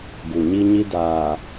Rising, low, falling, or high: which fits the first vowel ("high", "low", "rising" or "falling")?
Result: low